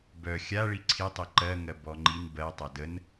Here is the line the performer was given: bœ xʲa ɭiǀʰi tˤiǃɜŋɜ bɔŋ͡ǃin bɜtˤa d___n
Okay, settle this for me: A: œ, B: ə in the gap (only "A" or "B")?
B